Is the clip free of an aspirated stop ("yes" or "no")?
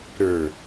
yes